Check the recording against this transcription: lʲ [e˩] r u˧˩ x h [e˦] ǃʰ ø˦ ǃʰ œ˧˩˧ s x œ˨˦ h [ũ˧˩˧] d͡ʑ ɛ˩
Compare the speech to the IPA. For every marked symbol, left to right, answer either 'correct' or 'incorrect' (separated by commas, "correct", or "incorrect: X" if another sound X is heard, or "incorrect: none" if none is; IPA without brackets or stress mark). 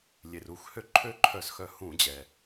correct, incorrect: ø˦, correct